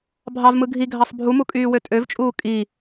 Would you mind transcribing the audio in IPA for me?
bʱ ɑ v m ɯ ɡʱ i ɡʱ ɑ sˤ bʱ u m u kʼ yː w ø tʼ ø v t͡ʃʼ uː kʼ i

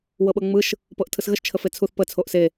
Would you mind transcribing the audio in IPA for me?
w ɤ ɓ ɤ ŋ͡m ɯ ʃ | p ɤ ʔ tʰ ɯ s ɣ ə ʃ t͡ʃʰ ə f e t͡sʰ u θ p ə t͡sʰ o ʔ s e

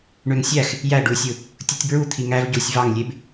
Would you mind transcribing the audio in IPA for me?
ɳ ø ŋ sʲ æ x | j æ ɖ u sʲ ɯ | tʲ ɯ tʲ b ɹ u t̪ʰ i ŋ æ v ɟ u sʲ v ɑ ŋ lʲ e b

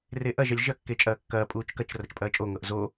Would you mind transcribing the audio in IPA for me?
r e ʔ ɐ ʒ ɐ lʲ ʒ ɐ kː e t͡ʃʼ ɐː kː ɐː pʼ uː t͡ʃ k ɐ t͡ʃ r ɐ t͡ʃ pʼ ɐː t͡ʃʼ o ŋ ɤ ʔ z o

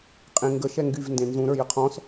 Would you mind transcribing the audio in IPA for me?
qʼ ẽ ŋ ɡ ə ʃ ɛ ŋ ɡ y v n d ẽ n z ũ ɾ ə˞ j ə qʰ ɔ̃ s

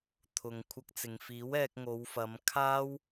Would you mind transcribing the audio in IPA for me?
t̪ʰ ʊ˨ ŋ kʷʰ ɐ˧ k̚ t͡s ɪ˨ ŋ f iː˨˥ w ɛː˧ k̚ ŋ o˨˧ w f ɐ˨˧ m kʰ aː˥ w

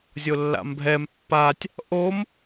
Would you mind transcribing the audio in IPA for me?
zʲ o lː a̰ m bʱ ɛ m pː a tʲ | ʔ o m

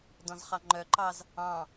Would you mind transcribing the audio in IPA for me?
d ɔ̃ z χ ɑ ŋ͡ǃ œ ǃ ɑ z | ɑ̃

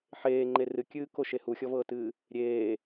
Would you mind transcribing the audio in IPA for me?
ħ eː ŋ͡ǃ e r ɨ kʲ ɨː k o ʃ e h u xʲ ɔ v ɤː t ɨː | ɾʲ eː

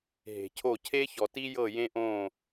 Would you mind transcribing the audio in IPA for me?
ɦ e̤˨ cʰ o˦˨ cʰ e˦ ç ɔ˨ t i˦ j ɤ˦˨ j ẽ˦ ʔ õ˦˨

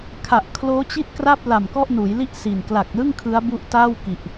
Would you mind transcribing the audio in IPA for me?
kʰ a˨˩ ʔ kʰ l oː˦˥ t͡ɕ i˥˩ t̚ k r a˥˩ p̚ l a˨˩ m k ɔ˥˩ ʔ n uː˩˦ j l i˥˩ ʔ s i˨˩ n k l a˨˩ k̚ l ɯ˥˩ ŋ kʰ ɯ˦˥ a̯ b u˦˥ ʔ t aː˥˩ w k i˨˩ ʔ

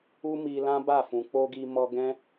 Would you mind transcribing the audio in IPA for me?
u˧ m i˧ l ã˦ b a˦˨ f ũ˨ k͡p o˧ ɡ i˧ m ɔ˧ ɡ ɛ̃˦

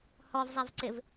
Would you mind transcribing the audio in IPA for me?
h ɔ v zˤ ɛ v ǀ ɪ v

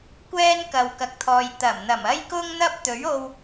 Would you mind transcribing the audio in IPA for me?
kʷ ɛː˥ n k ɐ˨ w k ɐ˨ k̚ t̪ʰ ɔː˨ j t̪ ɐ˨˩ m n̪ ɐ˨˩ m ɐ˥ j k ʊ˥ ŋ n̪ ɐ˥ p̚ t̪ ɵ˨˥ ɥ o˧ w

